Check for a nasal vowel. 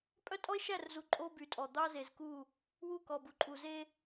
absent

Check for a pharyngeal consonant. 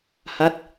absent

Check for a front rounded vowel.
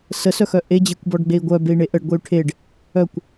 present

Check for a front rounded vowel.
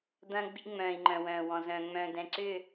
present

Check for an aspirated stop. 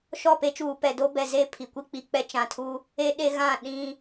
present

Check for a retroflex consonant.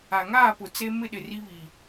absent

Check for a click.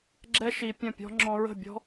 present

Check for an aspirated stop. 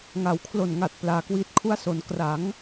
present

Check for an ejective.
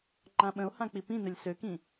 absent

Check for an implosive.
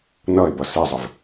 absent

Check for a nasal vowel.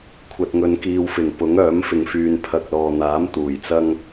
absent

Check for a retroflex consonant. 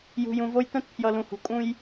absent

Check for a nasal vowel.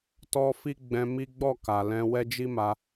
present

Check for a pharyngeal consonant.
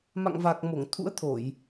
absent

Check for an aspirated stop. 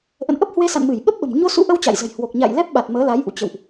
absent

